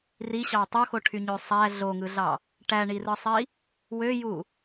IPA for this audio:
riɕɑ tˤoxoʈʰyɲø sˤæ ɮoŋɯɮɑ | ʈæɳirɯsˤi | wøju

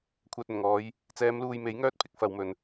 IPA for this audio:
kʷʰœː˨t̚ɵ˨˩nŋɔː˨˧j | t͡sɛː˨˧mluː˨jme˨˥j ŋœː˥t̚pʰɪ˧k̚ fɐ˨˧wmɵ˨˧n

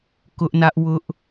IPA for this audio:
kʊ˦ʔnä˦ʔ wʊ˦ʔ

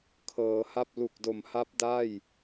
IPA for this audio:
kʰɤː˩˦ha˥˩p̚ lu˨˩k̚do˨˩mha˦˥p̚ da˥˩j

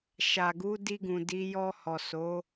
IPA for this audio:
ʃa˨ɡu˨˦di˧ɡũ˨ di˨˦ jɔ˧hɔ˨ so˨˦

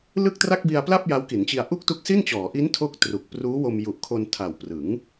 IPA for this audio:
lɯ˥˩k̚tra˥˩k̚bi˧a̯pla˥˩p̚ ja˦˥wki˩˦nt͡ɕi˧a̯ ʔu˥˩k̚tu˦˥k̚si˥˩nt͡ɕɔː˩˦ ʔi˦˥ntʰo˦˥k̚ tru˨˩k̚ pruː˦˥wo˧mju˨˩ʔkʰo˧n tʰa˨˩w prɯ˩˦ŋ

